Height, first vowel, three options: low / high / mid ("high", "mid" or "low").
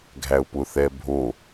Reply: low